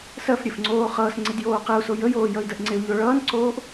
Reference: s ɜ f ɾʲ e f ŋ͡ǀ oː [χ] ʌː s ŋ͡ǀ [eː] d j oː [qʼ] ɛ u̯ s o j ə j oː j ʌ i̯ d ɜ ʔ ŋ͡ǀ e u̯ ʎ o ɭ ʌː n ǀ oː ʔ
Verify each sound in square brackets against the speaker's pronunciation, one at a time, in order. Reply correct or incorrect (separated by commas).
correct, incorrect, incorrect